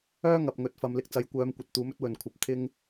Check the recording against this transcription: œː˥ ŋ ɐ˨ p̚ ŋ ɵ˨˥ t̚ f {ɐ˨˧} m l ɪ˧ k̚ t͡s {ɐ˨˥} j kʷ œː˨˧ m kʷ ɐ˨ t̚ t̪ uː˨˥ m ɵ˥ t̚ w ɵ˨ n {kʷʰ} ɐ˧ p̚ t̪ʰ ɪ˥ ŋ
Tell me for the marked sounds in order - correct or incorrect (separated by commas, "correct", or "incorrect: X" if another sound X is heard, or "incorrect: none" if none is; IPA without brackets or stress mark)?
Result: correct, correct, correct